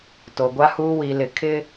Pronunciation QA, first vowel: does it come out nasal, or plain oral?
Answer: oral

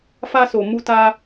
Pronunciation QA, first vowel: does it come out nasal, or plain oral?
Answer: oral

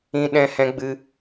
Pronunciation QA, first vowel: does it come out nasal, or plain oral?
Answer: nasal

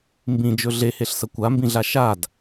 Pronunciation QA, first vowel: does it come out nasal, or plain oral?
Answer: nasal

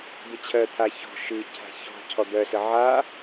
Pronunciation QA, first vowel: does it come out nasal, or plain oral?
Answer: oral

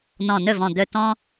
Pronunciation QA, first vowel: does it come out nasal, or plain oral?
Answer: nasal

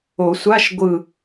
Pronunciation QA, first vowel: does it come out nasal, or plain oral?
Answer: oral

